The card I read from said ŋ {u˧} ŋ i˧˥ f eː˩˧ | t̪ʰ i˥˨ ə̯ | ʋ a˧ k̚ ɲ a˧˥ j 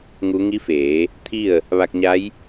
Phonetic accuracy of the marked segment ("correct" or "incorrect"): incorrect